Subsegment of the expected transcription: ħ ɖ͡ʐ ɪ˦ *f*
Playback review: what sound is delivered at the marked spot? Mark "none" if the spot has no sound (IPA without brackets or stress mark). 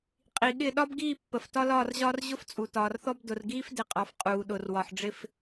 f